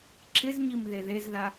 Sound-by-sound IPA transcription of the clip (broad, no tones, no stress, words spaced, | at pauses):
ǁɪzɲim ðeðezða